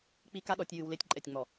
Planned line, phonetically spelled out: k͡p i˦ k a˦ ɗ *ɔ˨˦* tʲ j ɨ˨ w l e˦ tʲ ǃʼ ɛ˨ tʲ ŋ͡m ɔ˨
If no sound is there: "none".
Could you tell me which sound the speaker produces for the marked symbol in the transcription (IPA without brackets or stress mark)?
ɔ˨˦